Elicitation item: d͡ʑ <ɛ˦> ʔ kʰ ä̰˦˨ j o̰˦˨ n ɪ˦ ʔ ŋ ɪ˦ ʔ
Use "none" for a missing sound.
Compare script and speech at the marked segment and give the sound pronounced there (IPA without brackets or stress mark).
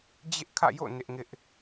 ɪ˦